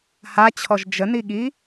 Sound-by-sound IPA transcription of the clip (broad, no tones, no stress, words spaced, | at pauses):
hat͡ɕʰɔʒ d͡ʒəniɠi